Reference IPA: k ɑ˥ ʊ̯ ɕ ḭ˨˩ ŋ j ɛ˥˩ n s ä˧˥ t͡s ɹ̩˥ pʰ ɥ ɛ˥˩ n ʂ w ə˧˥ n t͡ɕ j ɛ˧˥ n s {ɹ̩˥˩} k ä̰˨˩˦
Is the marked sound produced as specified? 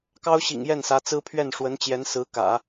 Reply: no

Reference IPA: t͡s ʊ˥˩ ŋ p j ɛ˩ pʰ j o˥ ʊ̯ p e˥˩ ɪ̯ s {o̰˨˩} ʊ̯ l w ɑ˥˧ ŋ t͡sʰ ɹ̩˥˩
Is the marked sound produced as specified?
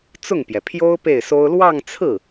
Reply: no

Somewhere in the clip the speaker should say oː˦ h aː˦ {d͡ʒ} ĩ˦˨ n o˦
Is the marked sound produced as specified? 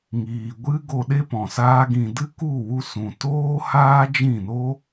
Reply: yes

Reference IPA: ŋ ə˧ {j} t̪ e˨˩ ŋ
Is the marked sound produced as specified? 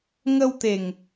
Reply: no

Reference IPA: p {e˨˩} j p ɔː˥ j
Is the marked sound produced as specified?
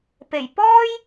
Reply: yes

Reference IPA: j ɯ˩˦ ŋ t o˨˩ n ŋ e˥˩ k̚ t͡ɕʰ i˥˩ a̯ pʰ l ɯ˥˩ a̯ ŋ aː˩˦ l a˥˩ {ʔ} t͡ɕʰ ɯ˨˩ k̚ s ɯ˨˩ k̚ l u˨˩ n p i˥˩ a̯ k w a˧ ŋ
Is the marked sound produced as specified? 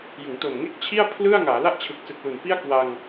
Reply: yes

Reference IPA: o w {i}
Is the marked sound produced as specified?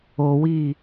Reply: no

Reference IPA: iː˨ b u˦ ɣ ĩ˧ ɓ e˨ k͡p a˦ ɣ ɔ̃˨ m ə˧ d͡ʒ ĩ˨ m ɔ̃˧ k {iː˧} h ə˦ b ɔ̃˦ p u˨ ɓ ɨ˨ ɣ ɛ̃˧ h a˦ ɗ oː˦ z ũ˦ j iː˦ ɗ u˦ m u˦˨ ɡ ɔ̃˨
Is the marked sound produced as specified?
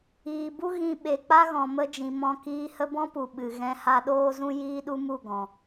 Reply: yes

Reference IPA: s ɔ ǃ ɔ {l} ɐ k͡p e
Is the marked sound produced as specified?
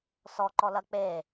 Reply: yes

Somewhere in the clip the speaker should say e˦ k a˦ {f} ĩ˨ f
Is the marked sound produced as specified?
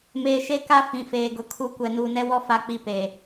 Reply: yes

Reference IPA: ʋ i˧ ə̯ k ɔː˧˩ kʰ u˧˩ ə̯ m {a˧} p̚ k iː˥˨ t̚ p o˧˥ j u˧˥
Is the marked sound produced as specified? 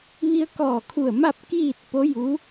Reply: no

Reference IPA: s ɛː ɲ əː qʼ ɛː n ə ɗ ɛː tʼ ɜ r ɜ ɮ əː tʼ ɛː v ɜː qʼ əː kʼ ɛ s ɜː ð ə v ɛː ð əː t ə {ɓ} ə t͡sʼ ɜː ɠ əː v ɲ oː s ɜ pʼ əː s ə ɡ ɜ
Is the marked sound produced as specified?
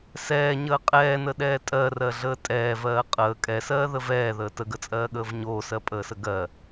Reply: no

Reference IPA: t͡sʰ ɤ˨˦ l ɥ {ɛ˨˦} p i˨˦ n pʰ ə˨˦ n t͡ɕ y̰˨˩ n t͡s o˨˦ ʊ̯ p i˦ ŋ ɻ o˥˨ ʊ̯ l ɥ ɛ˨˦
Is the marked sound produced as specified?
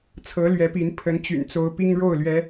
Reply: yes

